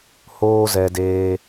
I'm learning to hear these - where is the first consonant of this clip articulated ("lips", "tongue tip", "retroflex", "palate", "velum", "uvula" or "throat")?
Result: throat